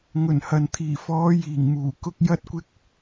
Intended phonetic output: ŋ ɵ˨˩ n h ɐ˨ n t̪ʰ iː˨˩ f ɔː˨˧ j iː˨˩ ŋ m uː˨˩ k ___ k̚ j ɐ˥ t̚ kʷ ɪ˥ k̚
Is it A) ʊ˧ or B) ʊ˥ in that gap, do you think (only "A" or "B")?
A